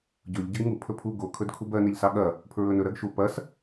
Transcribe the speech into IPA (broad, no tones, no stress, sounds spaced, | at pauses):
ɟ ɵ ʎ ɟ ɐ ɡ ŋ u pʰ ɵ pʰ u ɡ o kʰ ɵ d kʰ u b ɜ n e ʎ s ɑ ɠ ɐ | pʰ ɹ ɵ n ɵ ɾ ɜ ɡ ʃ u p ɐ s